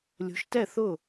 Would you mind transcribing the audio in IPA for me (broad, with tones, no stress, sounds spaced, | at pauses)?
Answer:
lʲ o̤˩˥ ʃ t ɛ˥˩ θ ʊ˥˩